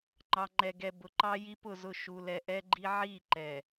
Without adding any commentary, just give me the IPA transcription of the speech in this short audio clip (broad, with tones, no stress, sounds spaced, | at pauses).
ŋ͡ǃ ɑ˨ ŋ͡ǃ ɛ˨ ɡ ɛ˨ b ʊ˨ ǃ ɑ˦ j i˦ p ʊ˦˨ z ʊ˦˨ ʃ u˨ l ɛ˨ ʔ ɛ˦ ɡ͡ǃ i˦ ʕ i˦˨ ǃ ɛ˨